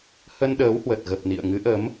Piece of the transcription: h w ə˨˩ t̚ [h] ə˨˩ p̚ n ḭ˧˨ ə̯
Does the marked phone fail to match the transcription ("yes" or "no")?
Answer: yes